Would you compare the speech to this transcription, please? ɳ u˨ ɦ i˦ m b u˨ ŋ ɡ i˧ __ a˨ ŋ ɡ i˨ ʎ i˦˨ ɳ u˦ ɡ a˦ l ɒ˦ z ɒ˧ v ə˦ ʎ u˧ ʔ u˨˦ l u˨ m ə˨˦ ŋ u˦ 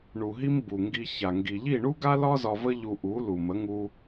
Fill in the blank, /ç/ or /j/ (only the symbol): ç